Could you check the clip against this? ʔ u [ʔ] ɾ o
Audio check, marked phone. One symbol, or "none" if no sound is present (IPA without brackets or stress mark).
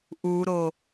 none